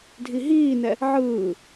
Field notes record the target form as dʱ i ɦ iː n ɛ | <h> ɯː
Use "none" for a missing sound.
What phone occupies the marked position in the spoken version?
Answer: ʕ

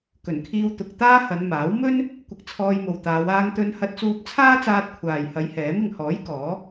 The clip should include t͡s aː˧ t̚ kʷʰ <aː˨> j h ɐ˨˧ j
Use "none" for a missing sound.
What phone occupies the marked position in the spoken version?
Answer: aː˨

